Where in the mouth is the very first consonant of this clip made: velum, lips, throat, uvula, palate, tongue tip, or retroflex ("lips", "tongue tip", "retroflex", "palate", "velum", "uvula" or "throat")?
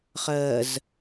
uvula